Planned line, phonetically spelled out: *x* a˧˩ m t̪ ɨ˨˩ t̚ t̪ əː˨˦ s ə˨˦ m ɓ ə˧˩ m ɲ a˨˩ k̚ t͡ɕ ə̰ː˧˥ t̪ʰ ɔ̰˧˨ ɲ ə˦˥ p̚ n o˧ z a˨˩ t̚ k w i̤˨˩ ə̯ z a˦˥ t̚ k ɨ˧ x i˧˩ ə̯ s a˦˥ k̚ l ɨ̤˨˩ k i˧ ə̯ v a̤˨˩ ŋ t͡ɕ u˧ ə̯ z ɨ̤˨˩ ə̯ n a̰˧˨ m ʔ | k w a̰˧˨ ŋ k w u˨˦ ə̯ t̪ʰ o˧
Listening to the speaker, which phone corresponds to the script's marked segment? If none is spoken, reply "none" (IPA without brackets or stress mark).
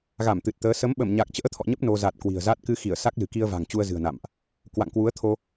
ɣ